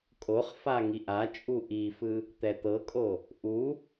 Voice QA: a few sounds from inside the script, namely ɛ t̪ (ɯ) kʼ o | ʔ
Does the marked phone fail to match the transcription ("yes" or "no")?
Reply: yes